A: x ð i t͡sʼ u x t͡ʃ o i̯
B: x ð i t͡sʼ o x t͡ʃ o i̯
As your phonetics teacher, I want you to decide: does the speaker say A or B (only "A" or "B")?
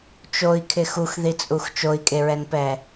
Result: A